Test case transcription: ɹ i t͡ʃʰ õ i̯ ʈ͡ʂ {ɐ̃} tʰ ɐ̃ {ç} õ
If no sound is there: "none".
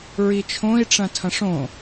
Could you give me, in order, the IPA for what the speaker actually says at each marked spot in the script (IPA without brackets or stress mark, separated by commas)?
ɐ̃, ʂ